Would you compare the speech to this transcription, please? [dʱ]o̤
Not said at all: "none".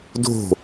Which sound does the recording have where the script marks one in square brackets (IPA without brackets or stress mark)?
dʱ